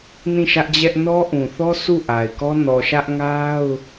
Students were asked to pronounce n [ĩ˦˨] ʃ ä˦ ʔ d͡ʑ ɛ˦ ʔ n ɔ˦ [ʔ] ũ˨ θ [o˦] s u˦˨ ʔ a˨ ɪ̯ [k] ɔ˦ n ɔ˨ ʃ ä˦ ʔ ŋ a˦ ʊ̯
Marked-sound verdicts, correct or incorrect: correct, correct, incorrect, correct

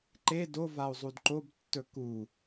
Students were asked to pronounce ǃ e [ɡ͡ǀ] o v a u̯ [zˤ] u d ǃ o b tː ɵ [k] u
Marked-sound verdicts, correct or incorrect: incorrect, correct, correct

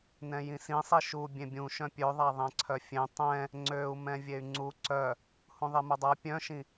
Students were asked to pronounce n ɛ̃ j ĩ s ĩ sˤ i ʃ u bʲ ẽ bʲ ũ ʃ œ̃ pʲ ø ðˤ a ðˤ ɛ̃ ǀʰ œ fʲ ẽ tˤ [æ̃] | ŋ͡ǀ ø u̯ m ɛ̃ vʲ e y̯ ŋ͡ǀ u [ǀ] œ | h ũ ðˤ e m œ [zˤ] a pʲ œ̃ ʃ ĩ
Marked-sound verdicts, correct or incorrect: incorrect, correct, incorrect

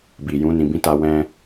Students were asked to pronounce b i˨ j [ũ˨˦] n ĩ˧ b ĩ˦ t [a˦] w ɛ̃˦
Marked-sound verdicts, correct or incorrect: correct, correct

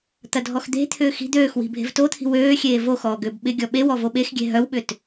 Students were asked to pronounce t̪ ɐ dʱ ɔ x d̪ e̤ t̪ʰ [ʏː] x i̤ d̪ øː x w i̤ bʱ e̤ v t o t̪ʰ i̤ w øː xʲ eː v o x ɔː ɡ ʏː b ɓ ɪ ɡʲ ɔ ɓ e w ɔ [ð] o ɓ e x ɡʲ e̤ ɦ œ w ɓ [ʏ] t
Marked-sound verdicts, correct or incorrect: correct, incorrect, correct

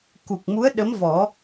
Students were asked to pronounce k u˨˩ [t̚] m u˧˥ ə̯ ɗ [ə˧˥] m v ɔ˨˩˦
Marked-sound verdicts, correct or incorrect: incorrect, correct

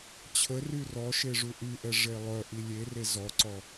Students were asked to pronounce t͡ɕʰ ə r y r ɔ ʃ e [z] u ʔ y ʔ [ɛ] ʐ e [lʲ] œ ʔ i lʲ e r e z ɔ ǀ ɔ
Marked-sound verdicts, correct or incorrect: incorrect, correct, incorrect

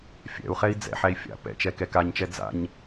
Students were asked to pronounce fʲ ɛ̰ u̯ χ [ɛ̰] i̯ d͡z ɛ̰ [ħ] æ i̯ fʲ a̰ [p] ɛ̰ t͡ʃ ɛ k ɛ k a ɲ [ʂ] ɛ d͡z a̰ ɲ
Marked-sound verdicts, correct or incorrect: incorrect, correct, correct, incorrect

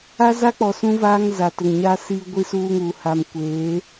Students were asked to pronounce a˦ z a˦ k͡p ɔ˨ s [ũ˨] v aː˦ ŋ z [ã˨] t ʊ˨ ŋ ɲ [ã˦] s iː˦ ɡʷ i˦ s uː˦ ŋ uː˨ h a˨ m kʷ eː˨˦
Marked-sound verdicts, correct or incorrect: incorrect, incorrect, incorrect

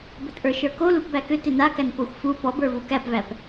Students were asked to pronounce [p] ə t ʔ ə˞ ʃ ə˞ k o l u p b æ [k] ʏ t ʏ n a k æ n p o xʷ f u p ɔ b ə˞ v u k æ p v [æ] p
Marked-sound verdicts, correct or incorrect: incorrect, correct, correct

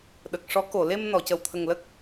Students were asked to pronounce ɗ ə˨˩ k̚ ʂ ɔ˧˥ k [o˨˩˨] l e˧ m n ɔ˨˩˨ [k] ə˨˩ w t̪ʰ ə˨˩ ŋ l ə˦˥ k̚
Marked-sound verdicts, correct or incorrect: correct, incorrect

